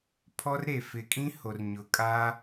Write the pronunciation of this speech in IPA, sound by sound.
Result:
pʰ ɔ˦ r ɾ e˨ f ɪ˨ kʼ ĩ˦ h o˨ r ɲ ʊ˨ kʼ a˦

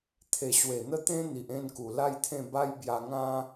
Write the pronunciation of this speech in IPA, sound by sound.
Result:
t̪ʰ e˨˩ ɕ w e˨˩ n̪ ə˥˧ t̪ ẽ˦ n̪ i˨ ʔ ẽ˥˧ n k u˨˩ l a˥˧ j t̪ʰ ẽ˥˧ b a˦ j b j a˧ ŋ ã˦

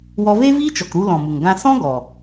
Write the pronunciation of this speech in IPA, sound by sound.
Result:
w ɔ˧ v e˦ v iː˦ t͡ʃ ɔ˨ k ɾ u˧ l ɔ̃˨ m u˨ ŋ ɡ ã˦ s ɔ̃˦ ɡ ɔ˨

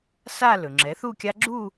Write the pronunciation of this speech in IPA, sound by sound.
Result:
s a˥˧ l ɵ˩ ŋ͡ǁ ɛ˩˥ θ u˥˧ kʲ a˦˥ ɡ͡ǁ u˥˧

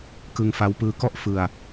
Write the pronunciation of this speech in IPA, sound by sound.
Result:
k ɯ˧ ŋ f a˦˥ w p ɯː˦˥ k ɔ˥˩ ʔ f ɯ˧ a̯

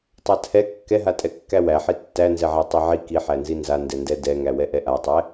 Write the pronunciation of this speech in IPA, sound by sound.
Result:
tˤ a tʰ ɛ kː ɛ ɦ a tʼ ɛ kː æ w æ ħ i tː æ n z ɛ ʕ æ tˤ ɛ ʕ i k i ħ æ n z i n z a n d ɛ n d ɛ d ɛ ŋ æ w ɛ ʔ ɛ ʔ a tˤ ɛ

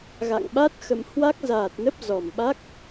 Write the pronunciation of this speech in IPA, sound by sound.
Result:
ɣ a̰˧˨ ŋ ɓ a˦˥ t̚ x ə̰˧˨ m h w a˦˥ k̚ z aː˨˩ t̚ n ə˦˥ p̚ z ɔ˨˩ m ɓ a˦˥ k̚

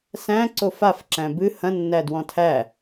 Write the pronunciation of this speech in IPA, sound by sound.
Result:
s æ̃ ǀ o f a f ǁ æ̃ b ɨ h ɐ̃ nː æ d w ɔ̃ tʰ æ

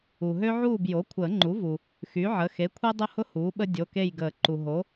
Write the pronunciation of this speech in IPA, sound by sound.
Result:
u˩ ɦ ø˦ ʕ uː˦˨ b j o˩˥ kʷʰ əː˨˩˦ ŋ͡ǃ u˩˥ v u˩ | x y˩˥ ʕ ə˩˧˩ x e˩˥ kʷʰ ɛ˦ dˤ ʊ˦˨ h ʊ˦ h uː˩˥ ɓ ə˦ dʲ o˩˧˩ k e˦˨ j ɡ əː˨˩˦ ǃ u˩ ɦ o˩˥

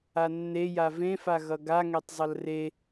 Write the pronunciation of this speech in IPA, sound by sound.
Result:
a nː e j a v ẽ f a ɣ ʌ ɡ a ŋ ɛ tˤ zˤ ʌ l r e

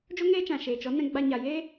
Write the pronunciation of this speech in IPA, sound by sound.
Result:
d͡ʒ o˦ ŋ eː˦ t͡ʃ ã˨ ʃ eː˨ t͡ʃ ɔ˨˦ n ɛ̃˧ ɡ͡b a˧ ɲ a˨ j eː˦

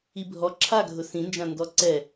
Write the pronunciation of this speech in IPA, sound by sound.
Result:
i bʱ ɔ ǁʰ a ɡʱ ʊ s ĩ n d͡ʒ ã n d ɔ ǀ ɛ

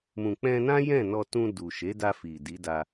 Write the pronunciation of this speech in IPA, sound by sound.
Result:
m ũ˨ k͡p ɛ̃˧ n ã˦ j ɛ̃˦˨ n ɔ˧ t ũ˧ d u˨ ʃ e˨˦ d a˧ f i˨ d i˨˦ d a˧

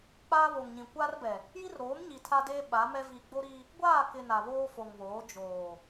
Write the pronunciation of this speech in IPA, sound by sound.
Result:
k͡p aː˦ β o˨ ŋ ɲ ĩ˨ kʷ aː˦ r b ɛ˨ | j i˦ r ɾ oː˨˦ m ɲ i˨ tʰ a˦ d eː˦ ɓ a˨˦ m ɛ˦ v i˨ ɡ͡b o˦ ɾ i˦ | ɡʷ aː˦˨ k ɪ˨ n a˨ β oː˦ f o˨ ŋ β oː˨˦ d͡ʒ oː˨

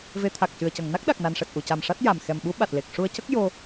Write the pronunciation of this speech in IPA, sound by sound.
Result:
v e˧˥ t̪ʰ a˨˩ k̚ c ɨ˨˩ ə̯ c ə˨˩˨ ŋ n a˦˥ k̚ ɗ a˨˩ k̚ n a˨˩ n ʂ ɛ˨˩ t̚ ʔ u˨˩˨ c a˨˩ m ʂ a˦˥ t̚ j a˨˩ m x ɛ˨˩ m ɓ u˧˥ ɓ a˨˩ t̚ l e˨˩ k̚ ʂ u˧ ə̯ c ə˦˥ k̚ j o˧

